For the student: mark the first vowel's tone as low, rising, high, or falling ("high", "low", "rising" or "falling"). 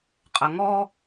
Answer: low